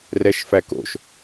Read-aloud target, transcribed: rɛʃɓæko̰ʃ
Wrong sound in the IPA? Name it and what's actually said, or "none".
ɓ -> f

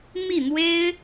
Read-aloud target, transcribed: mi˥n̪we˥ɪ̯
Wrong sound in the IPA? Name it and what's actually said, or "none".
i˥ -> i˥˩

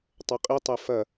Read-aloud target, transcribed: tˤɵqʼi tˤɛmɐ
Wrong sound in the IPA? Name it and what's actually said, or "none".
m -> f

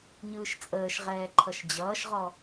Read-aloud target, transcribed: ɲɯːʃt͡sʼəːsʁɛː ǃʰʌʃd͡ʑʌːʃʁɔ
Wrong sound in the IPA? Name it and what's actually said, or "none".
s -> ʃ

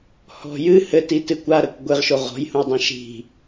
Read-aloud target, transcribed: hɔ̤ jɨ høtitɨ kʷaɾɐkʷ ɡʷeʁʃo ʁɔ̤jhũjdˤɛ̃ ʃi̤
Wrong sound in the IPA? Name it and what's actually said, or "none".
ø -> ɘ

